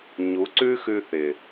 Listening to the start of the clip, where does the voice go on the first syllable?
rising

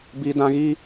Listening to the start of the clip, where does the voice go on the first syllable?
high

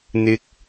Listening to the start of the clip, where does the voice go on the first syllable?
rising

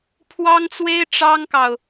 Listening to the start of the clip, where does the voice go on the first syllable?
high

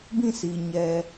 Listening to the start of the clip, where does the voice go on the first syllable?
falling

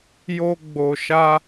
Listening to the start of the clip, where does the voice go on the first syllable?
high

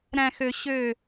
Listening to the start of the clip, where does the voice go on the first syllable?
low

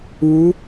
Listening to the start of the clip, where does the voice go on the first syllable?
rising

